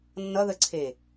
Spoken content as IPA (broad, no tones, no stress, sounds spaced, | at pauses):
nː ʌ ð ə ǀʰ e